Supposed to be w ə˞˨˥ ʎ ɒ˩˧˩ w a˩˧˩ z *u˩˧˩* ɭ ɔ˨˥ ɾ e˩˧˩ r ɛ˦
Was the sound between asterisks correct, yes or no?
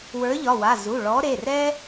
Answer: yes